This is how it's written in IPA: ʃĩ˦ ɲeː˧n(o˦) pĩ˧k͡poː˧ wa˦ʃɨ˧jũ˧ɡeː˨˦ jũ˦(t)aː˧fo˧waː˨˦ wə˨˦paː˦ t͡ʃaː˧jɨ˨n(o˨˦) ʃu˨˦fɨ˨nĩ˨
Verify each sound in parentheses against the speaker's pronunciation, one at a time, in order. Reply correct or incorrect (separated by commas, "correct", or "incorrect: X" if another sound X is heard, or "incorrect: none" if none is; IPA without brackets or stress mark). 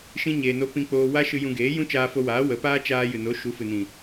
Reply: correct, incorrect: t͡ʃ, correct